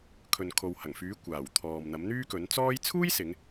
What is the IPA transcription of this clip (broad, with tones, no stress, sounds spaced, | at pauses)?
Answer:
kʰ ɵ˨ n kʰ o˨ w h ɐ˨˩ ŋ f yː˨˥ kʷ aː˨˩ w t̪ʰ ɔː˨ m n̪ ɐ˨˥ m n̪ yː˥ k ɵ˨˥ n t͡s ɔː˥ j t͡sʰ uː˥ j s ɪ˨˧ ŋ